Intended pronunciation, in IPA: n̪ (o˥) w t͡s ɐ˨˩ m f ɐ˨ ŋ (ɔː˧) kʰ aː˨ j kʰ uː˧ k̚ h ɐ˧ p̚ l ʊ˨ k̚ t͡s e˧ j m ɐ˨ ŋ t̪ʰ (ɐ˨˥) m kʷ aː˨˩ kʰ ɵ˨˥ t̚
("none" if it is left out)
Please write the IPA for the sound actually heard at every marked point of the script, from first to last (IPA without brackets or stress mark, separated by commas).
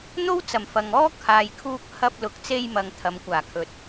o˥, ɔː˥, ɐ˨˧